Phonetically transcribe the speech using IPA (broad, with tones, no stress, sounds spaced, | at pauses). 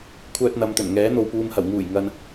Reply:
kʷʰ œː˧ t̚ n̪ ɐ˨˧ m t̪ ɵ˨˩ n ŋ ɛː˨˥ n̪ o˨ w p uː˨ m h ɐ˨˩ w ŋ uː˨˩ j ŋ ɐ˨ n